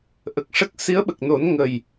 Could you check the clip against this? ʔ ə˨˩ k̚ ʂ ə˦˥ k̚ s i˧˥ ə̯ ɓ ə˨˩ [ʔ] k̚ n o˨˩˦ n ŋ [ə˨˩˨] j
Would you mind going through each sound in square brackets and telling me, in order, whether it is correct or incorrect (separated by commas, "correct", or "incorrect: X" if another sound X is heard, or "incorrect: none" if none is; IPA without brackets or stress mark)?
incorrect: none, incorrect: ə˨˩